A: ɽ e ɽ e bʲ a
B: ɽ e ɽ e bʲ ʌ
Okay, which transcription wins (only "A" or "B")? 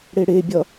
B